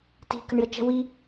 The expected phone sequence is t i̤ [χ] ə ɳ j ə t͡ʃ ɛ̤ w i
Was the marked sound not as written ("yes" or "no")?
yes